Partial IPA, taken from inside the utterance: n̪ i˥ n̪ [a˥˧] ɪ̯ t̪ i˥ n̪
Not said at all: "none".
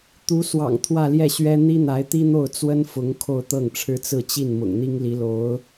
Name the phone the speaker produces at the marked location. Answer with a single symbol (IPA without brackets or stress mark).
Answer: a˧˥